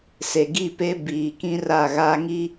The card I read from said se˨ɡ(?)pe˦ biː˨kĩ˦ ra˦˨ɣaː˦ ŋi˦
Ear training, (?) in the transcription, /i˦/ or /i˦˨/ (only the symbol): i˦˨